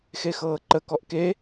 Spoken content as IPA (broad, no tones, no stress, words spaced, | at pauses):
xexɤːǃə kɔʔke